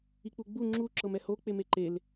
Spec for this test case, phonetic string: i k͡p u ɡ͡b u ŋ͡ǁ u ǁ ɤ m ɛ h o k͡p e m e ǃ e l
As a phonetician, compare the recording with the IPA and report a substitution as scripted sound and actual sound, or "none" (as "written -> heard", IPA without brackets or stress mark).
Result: none